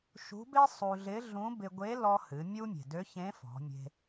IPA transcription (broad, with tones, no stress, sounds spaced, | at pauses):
ʃ ṳ˧˥ b e˥ sˤ u˧ ɮ ɪ˧˥ ɮ ũ˧˥ b ɪ˧ ɡʷ e˧˥ l ɔ˧ h ɨ˩˧ mʲ u˧ mʲ e̤˩ d ø˧˥ ç ẽ˧˥ f ɔ̤˩˧ mʲ e̤˧